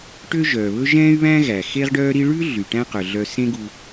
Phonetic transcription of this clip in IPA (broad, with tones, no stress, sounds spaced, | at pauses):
ʈ ø˥ ʒ œ˩ β ɵ˥ ʒ ɛ̃ː˥ y̯ β æ̃˥ ɣ æ˩ x e˥ ʁ ɖ œː˥ ɾ i˥ ɭ ʉ˥ ɮ y˩ ʈ æ̃˥ q œ˩ ɮ œ˧ s ẽ˥ ɡ u˧